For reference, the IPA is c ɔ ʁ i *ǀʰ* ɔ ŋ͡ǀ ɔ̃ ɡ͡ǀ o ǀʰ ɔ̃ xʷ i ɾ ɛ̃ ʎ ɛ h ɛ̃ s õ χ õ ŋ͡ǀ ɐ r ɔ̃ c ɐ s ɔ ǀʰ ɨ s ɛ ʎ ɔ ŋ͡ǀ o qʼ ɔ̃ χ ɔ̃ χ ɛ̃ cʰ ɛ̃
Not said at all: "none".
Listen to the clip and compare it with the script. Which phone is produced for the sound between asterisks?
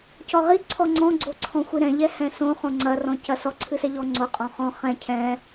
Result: ǀʰ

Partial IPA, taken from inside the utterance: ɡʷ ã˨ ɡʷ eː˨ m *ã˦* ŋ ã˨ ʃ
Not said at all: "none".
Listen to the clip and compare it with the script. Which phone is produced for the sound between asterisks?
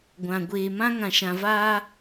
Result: ã˦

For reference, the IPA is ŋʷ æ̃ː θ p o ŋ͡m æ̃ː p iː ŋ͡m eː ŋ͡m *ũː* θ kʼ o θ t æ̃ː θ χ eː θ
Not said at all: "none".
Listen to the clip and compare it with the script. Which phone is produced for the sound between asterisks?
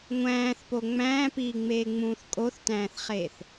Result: ũː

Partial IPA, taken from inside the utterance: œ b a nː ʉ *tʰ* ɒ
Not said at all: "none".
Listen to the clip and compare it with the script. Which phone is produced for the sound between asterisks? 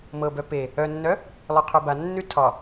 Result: tʰ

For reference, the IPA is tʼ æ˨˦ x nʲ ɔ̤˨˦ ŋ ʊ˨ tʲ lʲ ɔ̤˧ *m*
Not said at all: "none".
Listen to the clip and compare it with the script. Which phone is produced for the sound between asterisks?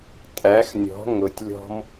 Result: m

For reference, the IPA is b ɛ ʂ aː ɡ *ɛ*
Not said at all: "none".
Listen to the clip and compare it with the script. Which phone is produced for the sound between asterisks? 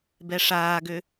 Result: ø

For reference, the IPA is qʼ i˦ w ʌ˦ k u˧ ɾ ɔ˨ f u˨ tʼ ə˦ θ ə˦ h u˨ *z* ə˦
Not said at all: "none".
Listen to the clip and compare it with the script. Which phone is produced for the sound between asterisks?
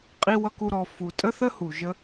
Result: ʒ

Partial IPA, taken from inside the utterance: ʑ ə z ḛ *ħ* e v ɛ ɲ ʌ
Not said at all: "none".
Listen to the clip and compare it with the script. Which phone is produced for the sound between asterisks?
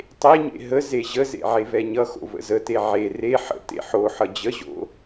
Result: ʕ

